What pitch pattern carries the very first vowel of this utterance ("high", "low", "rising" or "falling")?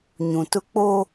low